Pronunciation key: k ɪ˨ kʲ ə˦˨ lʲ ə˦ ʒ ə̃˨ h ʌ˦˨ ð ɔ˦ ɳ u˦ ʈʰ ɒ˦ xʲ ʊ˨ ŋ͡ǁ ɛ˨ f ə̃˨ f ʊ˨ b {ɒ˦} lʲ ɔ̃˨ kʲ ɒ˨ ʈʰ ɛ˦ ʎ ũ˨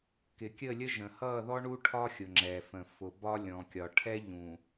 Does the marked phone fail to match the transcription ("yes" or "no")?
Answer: no